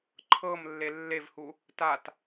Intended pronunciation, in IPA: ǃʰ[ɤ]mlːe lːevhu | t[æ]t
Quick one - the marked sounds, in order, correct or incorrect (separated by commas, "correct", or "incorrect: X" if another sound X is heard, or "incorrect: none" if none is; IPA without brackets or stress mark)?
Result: correct, incorrect: a